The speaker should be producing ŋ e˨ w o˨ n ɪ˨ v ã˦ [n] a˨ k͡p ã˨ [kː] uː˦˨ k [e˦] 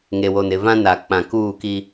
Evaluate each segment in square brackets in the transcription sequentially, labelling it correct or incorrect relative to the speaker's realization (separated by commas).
correct, incorrect, incorrect